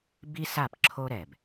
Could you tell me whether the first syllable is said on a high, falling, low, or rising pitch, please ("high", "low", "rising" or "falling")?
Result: high